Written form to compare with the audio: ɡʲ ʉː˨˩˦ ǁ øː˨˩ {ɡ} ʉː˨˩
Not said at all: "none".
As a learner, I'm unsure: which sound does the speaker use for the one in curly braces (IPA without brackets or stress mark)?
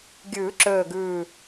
ɡ